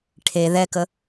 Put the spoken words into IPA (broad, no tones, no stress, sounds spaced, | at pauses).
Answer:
ʈʰ e ð ɛ k ə